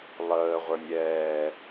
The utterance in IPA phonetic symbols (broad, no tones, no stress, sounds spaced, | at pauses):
lˠ əː ʁʷ ə˞ nʲ ɛː